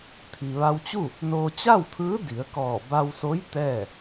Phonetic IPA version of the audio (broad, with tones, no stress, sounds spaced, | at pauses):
t̪ʰ i˩ ʋ a˧ w t͡ɕ u˥˨ | n oː˧ t͡ɕ a˥˨ w t̪ʰ ɯː˧˥ d i˩˧ ə̯ k ɔː˧˩ b a˧ w s o˧˥ j t̪ ɛː˥˨